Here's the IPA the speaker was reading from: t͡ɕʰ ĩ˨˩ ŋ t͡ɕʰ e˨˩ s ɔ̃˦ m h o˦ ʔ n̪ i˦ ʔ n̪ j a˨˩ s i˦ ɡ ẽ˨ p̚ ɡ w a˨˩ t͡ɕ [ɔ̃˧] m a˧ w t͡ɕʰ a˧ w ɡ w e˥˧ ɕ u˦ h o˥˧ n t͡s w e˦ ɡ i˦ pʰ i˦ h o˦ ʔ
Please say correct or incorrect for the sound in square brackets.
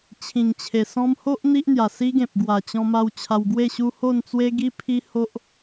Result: correct